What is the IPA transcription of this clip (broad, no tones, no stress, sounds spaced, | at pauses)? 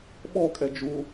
ɓ ɔ kʼ ɛ d͡ʒ u